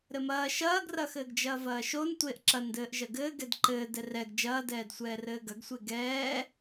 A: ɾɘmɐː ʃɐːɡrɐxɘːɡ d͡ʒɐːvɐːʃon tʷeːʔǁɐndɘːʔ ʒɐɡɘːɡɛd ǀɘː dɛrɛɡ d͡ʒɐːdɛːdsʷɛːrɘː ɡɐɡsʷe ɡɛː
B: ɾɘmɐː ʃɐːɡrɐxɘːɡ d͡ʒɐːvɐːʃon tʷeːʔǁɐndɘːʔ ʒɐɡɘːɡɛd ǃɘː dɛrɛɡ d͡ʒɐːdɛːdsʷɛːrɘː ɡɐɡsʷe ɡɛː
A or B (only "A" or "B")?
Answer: B